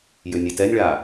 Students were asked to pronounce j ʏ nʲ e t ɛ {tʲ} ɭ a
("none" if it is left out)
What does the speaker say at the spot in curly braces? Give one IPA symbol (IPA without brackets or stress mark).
nʲ